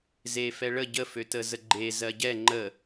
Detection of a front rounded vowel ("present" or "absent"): present